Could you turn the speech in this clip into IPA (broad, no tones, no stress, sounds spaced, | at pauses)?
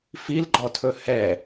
f i l ɡ͡ǃ ɔ tʰ ɵ h ɛ